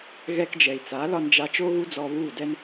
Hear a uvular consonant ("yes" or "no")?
no